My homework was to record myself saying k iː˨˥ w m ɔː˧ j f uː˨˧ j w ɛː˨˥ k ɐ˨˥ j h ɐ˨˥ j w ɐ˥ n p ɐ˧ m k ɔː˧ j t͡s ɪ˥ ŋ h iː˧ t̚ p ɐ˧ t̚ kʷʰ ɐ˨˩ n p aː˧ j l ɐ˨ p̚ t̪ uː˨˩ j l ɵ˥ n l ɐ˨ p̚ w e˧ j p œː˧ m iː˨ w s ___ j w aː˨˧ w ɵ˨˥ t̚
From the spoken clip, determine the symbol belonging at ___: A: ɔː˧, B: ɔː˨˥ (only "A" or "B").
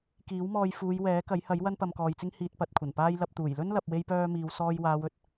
A